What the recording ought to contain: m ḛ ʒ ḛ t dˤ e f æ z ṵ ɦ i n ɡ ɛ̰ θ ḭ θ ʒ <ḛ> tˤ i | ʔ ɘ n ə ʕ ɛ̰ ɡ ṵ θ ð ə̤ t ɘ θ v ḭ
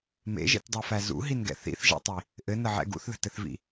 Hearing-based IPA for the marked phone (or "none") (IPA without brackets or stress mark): ḛ